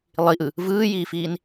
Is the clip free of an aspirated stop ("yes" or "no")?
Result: yes